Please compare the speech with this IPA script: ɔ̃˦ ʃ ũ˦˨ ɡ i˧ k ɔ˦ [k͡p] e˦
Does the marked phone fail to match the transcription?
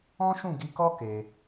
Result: yes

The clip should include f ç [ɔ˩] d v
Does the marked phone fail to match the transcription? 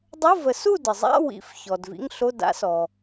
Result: no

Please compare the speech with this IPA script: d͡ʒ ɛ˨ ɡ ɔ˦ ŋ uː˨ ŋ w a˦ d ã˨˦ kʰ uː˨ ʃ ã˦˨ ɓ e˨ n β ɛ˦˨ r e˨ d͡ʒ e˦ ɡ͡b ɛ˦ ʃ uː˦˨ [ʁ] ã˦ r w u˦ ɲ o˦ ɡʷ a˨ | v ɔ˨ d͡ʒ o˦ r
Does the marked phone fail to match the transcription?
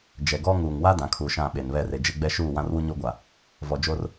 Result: yes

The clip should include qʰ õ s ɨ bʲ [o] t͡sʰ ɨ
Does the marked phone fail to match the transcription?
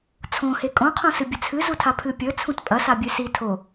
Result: yes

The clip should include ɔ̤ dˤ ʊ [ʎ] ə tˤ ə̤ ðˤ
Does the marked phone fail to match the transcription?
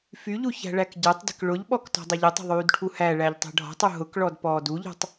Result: no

